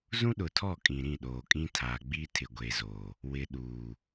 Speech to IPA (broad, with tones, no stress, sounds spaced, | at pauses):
z ũ˦ ɗ ʊ˨ tʰ ɔ˦˨ kʼ ĩ˨ ɾ ĩ˦˨ ɗ oː˨ kʼ ĩ˦ tʰ aː˨ ɡ͡b iː˦ tʰ ɪ˨ ɡʷ e˨ z oː˨ | w ɪ˨ ɗ uː˨